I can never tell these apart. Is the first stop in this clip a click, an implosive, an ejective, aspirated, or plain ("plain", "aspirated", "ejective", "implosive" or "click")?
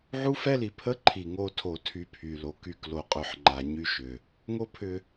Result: aspirated